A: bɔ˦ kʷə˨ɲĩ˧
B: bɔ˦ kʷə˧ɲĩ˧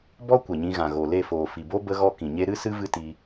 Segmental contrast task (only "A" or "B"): A